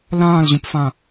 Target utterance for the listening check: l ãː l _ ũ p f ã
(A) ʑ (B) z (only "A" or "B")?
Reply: A